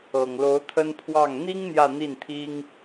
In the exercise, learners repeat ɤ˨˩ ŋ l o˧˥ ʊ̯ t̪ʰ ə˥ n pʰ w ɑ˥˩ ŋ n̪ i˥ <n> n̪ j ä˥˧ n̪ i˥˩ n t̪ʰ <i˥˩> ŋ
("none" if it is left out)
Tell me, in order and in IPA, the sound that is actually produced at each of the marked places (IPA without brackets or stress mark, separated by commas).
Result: ŋ, i˥